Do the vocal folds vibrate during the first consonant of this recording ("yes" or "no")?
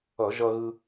yes